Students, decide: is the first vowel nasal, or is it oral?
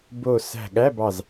oral